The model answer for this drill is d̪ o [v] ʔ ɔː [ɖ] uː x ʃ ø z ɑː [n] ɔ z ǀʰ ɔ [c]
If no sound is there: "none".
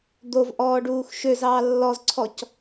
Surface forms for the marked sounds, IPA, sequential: v, ɖ, lː, c

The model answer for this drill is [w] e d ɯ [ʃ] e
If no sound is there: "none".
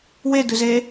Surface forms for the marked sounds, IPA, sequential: w, z

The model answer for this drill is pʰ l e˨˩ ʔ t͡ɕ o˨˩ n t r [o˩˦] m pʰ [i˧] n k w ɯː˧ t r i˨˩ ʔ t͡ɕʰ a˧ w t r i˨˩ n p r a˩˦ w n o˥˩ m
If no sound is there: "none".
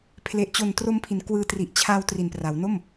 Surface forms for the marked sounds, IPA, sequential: o˧, i˩˦

